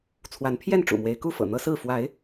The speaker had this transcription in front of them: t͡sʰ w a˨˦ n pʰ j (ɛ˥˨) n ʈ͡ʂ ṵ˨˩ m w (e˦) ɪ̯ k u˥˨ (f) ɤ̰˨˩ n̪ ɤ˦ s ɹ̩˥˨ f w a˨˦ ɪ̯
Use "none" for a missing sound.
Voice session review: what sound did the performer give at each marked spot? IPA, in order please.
ɛ˥˨, e˨˦, f

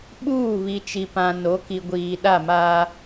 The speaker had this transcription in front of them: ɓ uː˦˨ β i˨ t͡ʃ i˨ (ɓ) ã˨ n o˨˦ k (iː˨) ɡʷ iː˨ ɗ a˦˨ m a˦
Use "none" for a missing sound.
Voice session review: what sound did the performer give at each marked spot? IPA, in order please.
p, i˨

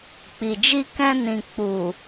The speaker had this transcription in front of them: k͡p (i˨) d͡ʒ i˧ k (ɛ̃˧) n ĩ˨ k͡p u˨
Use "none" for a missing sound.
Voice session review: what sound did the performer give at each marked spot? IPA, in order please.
i˨, ɛ̃˧

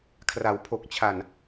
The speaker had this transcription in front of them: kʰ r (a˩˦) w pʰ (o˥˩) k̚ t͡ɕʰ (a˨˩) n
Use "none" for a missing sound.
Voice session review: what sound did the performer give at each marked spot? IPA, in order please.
a˩˦, o˨˩, a˨˩

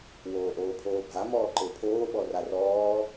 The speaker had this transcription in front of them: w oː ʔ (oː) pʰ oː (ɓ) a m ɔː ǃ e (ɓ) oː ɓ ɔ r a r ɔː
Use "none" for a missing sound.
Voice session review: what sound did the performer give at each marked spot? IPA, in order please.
oː, bʱ, pʰ

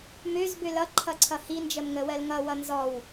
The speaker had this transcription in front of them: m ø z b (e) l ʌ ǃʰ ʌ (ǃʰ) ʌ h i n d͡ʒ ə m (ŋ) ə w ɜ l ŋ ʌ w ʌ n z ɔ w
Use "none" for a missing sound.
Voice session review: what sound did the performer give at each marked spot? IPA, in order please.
ø, ǀʰ, ŋ

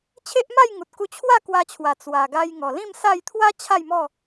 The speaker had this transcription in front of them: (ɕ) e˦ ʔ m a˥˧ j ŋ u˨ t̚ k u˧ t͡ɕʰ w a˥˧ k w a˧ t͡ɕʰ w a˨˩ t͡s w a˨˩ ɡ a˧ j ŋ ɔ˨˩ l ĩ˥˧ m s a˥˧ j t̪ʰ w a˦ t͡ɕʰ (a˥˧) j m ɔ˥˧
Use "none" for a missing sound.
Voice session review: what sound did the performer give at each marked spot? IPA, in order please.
t͡ɕʰ, a˥˧

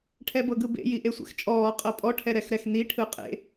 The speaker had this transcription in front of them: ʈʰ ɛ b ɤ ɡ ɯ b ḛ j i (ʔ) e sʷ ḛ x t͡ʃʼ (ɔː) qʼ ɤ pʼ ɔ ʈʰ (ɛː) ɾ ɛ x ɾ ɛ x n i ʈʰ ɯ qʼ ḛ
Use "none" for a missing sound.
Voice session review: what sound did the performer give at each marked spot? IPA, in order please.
ʔ, ɔː, ɛ

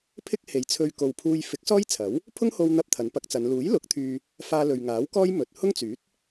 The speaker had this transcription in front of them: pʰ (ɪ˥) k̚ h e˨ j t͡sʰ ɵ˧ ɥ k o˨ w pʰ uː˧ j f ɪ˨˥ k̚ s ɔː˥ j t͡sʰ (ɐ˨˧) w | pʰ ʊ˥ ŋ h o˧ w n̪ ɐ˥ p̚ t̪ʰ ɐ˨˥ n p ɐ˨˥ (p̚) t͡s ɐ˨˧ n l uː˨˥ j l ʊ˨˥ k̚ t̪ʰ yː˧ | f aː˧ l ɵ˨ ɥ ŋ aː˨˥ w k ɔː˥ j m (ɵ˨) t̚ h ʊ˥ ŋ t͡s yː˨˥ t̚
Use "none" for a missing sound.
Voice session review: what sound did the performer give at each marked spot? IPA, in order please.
ɪ˥, ɐ˨˥, k̚, ɵ˨

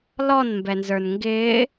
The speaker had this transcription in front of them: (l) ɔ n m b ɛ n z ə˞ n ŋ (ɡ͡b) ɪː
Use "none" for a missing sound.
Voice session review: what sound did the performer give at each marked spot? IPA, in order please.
l, ɡ

